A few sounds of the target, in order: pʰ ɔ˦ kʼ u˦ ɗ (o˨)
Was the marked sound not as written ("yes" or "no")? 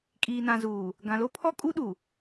yes